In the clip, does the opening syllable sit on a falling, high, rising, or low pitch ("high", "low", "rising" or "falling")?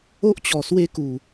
high